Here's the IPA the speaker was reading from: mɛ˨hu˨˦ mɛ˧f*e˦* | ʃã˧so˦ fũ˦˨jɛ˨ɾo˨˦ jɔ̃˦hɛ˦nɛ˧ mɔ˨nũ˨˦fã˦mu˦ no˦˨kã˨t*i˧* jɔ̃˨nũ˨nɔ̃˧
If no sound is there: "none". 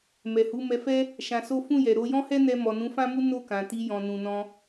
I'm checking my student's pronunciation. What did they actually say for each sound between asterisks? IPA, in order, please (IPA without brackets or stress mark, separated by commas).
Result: ɛ˦, i˧